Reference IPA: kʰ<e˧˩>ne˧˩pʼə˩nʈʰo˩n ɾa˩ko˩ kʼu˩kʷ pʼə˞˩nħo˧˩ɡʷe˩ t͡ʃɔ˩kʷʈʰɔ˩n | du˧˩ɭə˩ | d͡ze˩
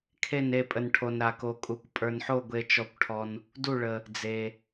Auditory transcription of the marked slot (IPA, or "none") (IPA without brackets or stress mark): e˧˩